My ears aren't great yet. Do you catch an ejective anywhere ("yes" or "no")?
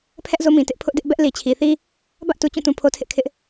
no